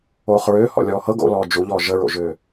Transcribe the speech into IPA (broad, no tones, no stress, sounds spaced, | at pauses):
oː χ ɹ ʏː h ɔ̰ lʲ ɔː h ɤ ɡ o̰ l ɔː d͡ʒ u ʎ ɔː ʒ ə ɹ o̰ ʒ ʏː